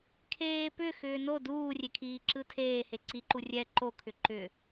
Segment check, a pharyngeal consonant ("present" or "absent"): absent